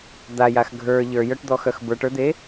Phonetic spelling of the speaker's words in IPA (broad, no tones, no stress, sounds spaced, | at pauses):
d̪ a j a x ɡʱ ə˞ ʎ ə˞ j œ ʈ d̪ ɔ x œ x b ə˞ ʈ ə˞ d̪ e